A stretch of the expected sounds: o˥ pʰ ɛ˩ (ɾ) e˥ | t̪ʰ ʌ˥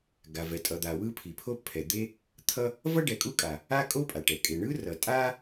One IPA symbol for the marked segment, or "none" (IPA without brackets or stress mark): d̪